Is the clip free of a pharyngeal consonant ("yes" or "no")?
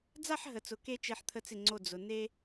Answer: no